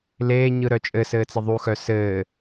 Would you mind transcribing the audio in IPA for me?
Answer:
leːɲɯ ɾœt͡ʃʼɘsɘː t͡sɘðˤuxœ sɘː

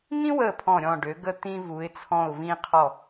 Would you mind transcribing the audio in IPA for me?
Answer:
ŋĩ˥wə˧˩ pʰɔ̃˧˩ɾʲɔ̃˧˩ɖø˩˧ɡə˧ t̪ĩ˧vu˩˧ɪ̯t͡sʰɔ̃˧˩ʊ̯ vĩ˧qʰɔ˧˩

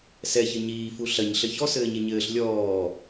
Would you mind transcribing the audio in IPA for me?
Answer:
sɛ çɘɲiː fuɬɐɲ ɬɘçɔ sɘːɲeɲɘːɬ lʲɔː

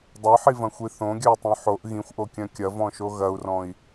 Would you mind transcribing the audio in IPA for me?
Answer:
dˤœħivɐ̃xʷi θõɡʲœy̯tˤõ ħoʔ ɣĩxʷʔokʲœ̃ kʲɐvɔ̃ʃo ɣɐu̯rɔ̃i̯

